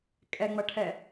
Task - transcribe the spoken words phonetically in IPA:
kʼ ɛ ŋ͡m ɐ ʈʰ ɛ

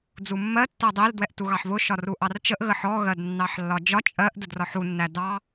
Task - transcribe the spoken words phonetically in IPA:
d͡z u mː ɜ tː ɜ dˤ i l d w ɛ ʔ t u ɣ ɑ ħ β ʊ ʃ ɒ r u ʔ ɑ r t͡ʃ ə ʔ ɣ ə ħ ɔ ɣ ɜ d nː ɑ ħ lː ɒ d͡ʒ ɒ t͡ʃʼ ɜ ʔ d ə d r ɒ ħ u nː æ d ɑ

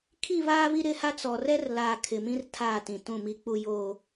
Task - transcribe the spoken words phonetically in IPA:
kʰ i˦˨ β aː˦ β i˦ ɾ ɪ˦˨ h a˦ t͡s ɔ˨ r ɛ˦ r l aː˨ kʰ ɪ˨ m ĩ˦ r tʰ aː˦˨ t ĩ˨ t ũ˦˨ m i˦ k͡p u˦ j oː˦

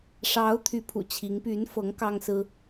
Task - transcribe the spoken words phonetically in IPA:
ʂ ɑ˧˥ ʊ̯ t̪ʰ y˧˥ pʰ ṵ˨˩ t͡ɕʰ i˧˥ ŋ p y˧˥ n f ɤ˧˥ ŋ k ɑ˥ ŋ s ɹ̩˥

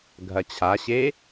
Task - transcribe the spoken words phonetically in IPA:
ɡʱ ɐ t͡ɕʰ a ɕ e

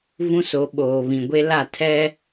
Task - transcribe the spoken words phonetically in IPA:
v ũ˦ s o˨˦ ɓ oː˨ β ĩ˨ ɡʷ e˦ l a˦˨ tʰ ɛ˦

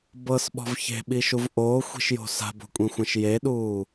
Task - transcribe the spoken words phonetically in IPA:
b ɤ s ɓ ɔ̤ v ç e̤ ɓ i ʃ u v ʔ oː xʷ i̤ ʃ j o̤ s a̤ b o̤ kʷʼ ĩ xʷ ɛ̃ ʃ j e ɗ uː

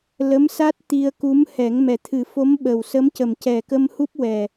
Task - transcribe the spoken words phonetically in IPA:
l ə˧˥ m s a˦˥ t̚ t̪ i˧ ə̯ k u˧˥ m h ɛ˨˩˦ ŋ m ɛ˨˩ t̪ʰ ɨ˨˩˦ f o˧˥ m ɓ ə˨˩ w s ə˧˥ m c ə˨˩ m c ɛ˨˩ k ə˧ m h u˦˥ p̚ w ɛ˨˩

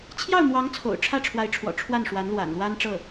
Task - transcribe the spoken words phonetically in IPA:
t͡ɕʰ j ɑ˥˩ ʊ̯ m w ɑ˧˥ ŋ t͡sʰ o̰˨˩ ʊ̯ ʈ͡ʂʰ ä˥˩ ʈ͡ʂʰ w a˧˥ ɪ̯ ʈ͡ʂʰ w ɔ̰˨˩ ʈ͡ʂʰ w a˥˩ n ʂ w a˧˥ n l w a̰˨˩ n l w a˥ n ʈ͡ʂ ɤ˥˩

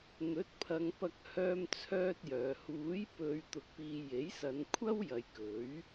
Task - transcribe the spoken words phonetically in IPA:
n̪ ɵ˨˥ t̚ pʰ ɐ˨˧ ŋ p ɐ˧ k̚ h œː˥ m t͡sʰ œː˥ t̚ j œː˨˧ h uː˨˥ j p ɵ˨˧ ɥ t̪ ʊ˧ k̚ p iː˧ j e˨˥ j s ɐ˨˧ n kʷʰ ɐ˥ w j ɐ˨˧ j k ɵ˨˥ ɥ

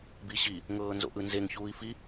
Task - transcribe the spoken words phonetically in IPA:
b i ɕ i | ŋ ɤː n z o̰ ʔ ɯ n z e ŋ ç uː i̯ f i

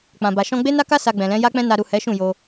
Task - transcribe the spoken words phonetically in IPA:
k͡p ã˨ b a˨ ʃ ɔ̃˧ ɡ͡b e˦ n a˦ k a˦ s a˧ ɡ͡b ɛ̃˨ l ɛ̃˨˦ j a˦ k͡p ɛ̃˦ n a˧ ɾ u˨ h ɛ˨˦ ʃ ũ˦˨ j o˧

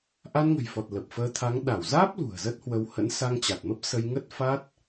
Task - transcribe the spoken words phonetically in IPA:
ʔ a˧ n ŋ ə̤˨˩ j f ɔ˨˩ t̚ l ə˨˩ p̚ f əː˧ t̪ʰ a˨˦ ŋ ɗ a˧˩ w z aː˦˥ p̚ l ṳ˨˩ ə̯ z ə˦˥ t̚ h w ə˧ w h ə̰˧˥ n s a˧ ŋ t͡ɕ a˨˩ t̚ m ə˦˥ p̚ s ə˧ j ŋ ə˦˥ t̚ f a˦˥ t̚

